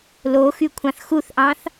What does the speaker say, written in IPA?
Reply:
loxykʷʰɑ̃θ xuθʔɑ̃θ

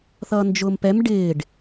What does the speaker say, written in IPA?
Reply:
θʌːnd͡ʒʊːmpɛm ɖɪːɖ

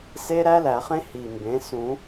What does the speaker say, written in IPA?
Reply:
se˦˥ ɾæ˦˥læ˨˩˦χẽ˦˥ hi˨˩mbẽ˩˥ sũ˨˩˦

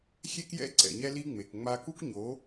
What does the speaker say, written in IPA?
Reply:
xʲe˦kjɛ̰˦ ǀɛ̰˨ɲɛ˦li˦ŋ͡me˨k ŋ͡ma˦ ku˦kɲo˨˦

